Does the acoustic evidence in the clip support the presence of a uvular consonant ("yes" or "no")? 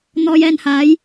no